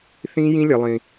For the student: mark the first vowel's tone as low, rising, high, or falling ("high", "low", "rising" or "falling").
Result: high